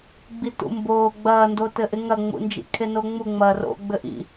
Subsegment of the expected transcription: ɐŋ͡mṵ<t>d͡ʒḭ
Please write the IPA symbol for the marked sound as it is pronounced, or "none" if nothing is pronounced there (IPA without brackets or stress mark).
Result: n